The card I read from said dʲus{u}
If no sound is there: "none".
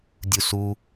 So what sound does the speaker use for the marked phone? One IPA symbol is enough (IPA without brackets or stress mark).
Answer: u